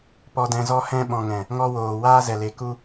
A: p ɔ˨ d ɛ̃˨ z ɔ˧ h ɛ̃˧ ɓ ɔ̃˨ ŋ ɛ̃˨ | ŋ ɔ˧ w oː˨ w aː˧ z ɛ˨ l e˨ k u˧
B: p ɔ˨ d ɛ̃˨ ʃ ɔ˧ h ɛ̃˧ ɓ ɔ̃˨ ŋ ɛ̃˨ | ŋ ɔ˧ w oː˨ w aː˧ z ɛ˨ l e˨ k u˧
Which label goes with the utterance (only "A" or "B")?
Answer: A